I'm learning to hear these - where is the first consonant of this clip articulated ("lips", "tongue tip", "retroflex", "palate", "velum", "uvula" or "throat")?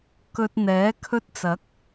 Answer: velum